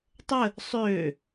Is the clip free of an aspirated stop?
yes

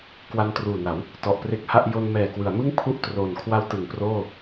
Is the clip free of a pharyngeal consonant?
yes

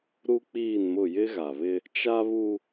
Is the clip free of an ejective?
yes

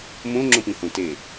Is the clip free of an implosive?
yes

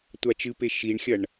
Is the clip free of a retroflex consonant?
no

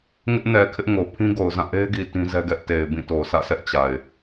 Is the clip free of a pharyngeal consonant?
yes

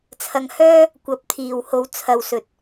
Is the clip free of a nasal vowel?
yes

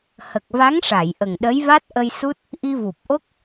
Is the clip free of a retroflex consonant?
no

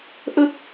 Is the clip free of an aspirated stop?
yes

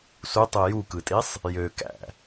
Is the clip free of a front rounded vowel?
no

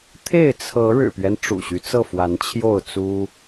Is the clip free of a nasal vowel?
yes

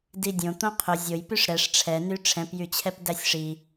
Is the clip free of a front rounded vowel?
no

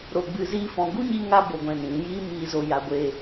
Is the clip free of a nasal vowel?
no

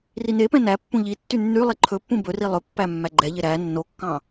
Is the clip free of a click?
no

